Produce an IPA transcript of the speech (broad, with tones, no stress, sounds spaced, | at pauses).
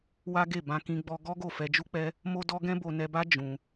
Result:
w a˦ ɡ e˦˨ b ã˧ k ĩ˧ ɡ͡b ɔ˧ ɡ ɔ˦ ɡ o˦˨ f ɛ˧ d͡ʒ u˦ k͡p ɛ˦ | m o˦ d ɔ˦ ɡ ɛ̃˦ b o˧ n ɛ˧ b a˦ d͡ʒ ũ˧